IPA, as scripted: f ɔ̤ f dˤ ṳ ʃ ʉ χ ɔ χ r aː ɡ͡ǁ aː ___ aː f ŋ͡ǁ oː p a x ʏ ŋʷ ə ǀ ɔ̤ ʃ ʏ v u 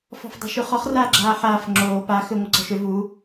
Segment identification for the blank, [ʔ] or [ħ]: ħ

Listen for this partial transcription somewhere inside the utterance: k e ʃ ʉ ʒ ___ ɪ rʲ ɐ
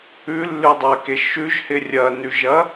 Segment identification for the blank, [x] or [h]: h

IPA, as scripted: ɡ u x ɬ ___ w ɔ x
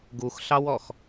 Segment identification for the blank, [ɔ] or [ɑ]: ɑ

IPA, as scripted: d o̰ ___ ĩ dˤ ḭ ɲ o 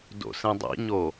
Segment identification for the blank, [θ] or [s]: s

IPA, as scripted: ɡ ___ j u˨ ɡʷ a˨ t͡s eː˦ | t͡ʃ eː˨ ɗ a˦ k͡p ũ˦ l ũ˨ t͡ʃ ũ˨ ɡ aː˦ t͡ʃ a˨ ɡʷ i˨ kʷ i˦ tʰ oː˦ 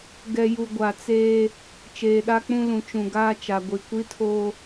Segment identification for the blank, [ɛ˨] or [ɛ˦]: ɛ˨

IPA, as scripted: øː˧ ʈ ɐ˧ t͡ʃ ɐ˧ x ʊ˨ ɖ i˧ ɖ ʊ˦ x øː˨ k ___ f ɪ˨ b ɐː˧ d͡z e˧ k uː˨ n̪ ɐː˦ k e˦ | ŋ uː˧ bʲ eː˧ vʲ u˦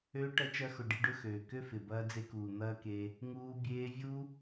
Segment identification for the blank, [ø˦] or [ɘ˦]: ø˦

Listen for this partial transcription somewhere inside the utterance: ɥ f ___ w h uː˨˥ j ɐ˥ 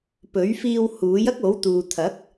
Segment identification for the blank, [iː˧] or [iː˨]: iː˧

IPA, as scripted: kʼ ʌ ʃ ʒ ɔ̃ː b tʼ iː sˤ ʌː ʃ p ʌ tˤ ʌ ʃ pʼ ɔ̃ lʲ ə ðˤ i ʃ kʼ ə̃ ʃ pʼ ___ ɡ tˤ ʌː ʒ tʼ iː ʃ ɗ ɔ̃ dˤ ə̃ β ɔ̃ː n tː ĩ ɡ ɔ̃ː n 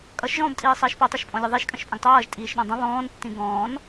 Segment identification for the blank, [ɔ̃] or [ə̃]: ə̃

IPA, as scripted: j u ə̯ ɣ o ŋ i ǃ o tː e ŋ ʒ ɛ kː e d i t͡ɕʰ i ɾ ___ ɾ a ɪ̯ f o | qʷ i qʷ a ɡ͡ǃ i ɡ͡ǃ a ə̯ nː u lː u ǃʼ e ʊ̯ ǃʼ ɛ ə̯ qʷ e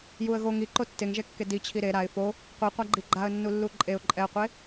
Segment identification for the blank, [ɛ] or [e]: e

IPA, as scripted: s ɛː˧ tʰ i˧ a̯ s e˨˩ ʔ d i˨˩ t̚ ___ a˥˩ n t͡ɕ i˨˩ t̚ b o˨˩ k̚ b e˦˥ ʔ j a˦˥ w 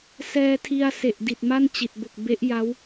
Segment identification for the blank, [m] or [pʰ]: m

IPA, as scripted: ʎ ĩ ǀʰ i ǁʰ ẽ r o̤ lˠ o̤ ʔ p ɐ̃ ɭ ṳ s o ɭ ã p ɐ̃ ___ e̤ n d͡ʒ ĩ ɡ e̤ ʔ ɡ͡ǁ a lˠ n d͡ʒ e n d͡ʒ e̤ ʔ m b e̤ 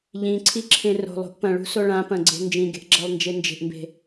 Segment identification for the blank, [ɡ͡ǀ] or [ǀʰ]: ɡ͡ǀ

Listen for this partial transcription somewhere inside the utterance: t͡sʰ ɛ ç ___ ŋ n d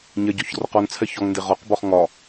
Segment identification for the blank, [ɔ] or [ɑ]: ɔ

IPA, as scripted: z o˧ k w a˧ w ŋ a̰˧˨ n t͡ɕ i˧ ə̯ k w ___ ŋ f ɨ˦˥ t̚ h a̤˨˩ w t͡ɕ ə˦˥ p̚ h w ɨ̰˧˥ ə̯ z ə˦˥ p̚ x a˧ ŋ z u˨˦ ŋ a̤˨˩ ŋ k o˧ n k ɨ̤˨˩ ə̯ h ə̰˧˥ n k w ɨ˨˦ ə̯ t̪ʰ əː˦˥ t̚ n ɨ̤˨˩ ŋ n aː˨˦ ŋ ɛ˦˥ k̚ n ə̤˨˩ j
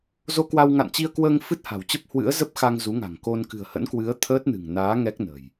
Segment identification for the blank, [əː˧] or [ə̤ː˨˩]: əː˧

